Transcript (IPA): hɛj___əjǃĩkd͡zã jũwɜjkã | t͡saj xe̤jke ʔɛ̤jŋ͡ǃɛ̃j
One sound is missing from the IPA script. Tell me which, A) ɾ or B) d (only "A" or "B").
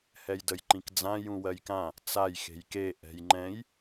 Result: B